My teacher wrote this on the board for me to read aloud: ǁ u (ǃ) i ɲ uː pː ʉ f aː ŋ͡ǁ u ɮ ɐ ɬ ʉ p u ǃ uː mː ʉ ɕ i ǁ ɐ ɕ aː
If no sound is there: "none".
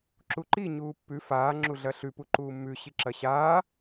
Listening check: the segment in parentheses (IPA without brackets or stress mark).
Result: ǃ